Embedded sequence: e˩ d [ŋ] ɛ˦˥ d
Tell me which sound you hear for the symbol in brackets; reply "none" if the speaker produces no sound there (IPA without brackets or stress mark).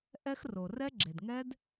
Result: ŋ